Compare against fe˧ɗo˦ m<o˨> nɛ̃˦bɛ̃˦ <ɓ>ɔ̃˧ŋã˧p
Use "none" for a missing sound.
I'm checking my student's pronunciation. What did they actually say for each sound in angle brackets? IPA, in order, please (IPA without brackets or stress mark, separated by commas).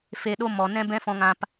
ɔ˨, f